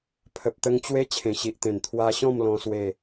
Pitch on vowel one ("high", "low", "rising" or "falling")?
low